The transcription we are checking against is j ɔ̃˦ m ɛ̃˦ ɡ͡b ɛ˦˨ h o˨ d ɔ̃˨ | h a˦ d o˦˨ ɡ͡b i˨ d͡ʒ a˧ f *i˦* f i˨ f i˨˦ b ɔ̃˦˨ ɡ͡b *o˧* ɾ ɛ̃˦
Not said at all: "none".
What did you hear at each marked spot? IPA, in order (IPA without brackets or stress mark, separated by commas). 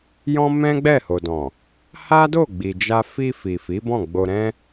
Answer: i˧, o˧